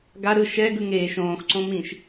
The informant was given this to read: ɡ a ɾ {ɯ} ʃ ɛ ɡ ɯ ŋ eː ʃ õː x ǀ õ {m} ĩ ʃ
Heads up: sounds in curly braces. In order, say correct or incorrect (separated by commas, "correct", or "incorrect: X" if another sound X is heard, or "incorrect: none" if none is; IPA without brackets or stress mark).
correct, correct